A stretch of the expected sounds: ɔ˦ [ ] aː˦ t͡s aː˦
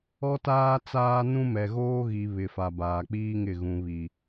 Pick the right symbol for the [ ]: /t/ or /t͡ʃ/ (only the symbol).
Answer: t